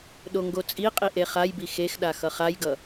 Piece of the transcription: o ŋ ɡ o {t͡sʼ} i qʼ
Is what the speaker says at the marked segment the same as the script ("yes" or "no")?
yes